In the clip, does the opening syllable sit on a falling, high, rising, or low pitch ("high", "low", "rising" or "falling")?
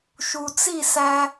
low